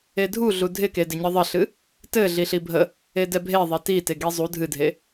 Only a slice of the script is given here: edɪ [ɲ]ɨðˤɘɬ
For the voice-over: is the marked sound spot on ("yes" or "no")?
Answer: yes